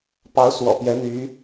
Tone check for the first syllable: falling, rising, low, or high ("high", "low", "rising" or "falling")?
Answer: rising